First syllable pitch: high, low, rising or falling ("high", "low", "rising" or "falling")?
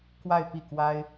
falling